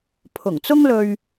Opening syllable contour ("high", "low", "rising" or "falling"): low